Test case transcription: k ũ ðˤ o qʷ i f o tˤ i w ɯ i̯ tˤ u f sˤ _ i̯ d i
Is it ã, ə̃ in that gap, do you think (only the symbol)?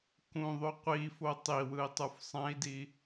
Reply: ã